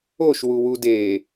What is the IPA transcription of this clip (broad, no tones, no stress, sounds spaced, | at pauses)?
o ʃ w u w u d e